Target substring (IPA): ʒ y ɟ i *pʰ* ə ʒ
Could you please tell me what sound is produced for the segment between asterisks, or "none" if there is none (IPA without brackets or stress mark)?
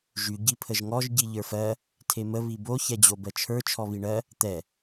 pʰ